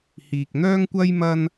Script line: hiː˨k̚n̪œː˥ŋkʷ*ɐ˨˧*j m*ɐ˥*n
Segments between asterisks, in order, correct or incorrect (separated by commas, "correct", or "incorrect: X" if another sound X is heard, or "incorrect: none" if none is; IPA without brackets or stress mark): incorrect: ɐ˥, correct